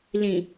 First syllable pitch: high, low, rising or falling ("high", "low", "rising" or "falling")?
low